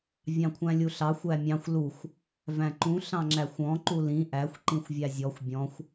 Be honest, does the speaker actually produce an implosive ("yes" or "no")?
no